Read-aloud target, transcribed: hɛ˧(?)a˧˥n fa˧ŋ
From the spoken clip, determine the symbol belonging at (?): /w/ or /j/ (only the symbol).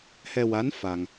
w